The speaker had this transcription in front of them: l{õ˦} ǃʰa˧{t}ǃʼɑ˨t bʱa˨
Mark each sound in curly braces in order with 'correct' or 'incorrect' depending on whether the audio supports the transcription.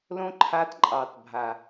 correct, correct

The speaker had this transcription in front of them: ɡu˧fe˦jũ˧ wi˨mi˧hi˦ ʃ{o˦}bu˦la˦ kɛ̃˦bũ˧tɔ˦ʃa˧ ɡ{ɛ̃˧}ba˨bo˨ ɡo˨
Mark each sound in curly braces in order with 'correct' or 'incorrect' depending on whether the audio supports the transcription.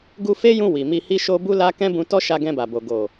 correct, correct

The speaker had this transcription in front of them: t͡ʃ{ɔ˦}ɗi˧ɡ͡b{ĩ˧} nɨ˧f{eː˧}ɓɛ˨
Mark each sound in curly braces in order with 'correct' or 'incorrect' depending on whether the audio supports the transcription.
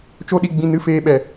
incorrect: o˦, correct, correct

